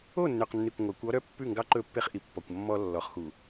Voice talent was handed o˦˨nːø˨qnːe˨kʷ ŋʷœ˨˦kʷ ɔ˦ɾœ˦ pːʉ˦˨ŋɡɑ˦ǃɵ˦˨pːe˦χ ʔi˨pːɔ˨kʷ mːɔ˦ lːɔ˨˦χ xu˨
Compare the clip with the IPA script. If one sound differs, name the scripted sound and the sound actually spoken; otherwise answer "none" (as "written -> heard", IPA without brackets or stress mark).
none